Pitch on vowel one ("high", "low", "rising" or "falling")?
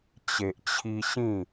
low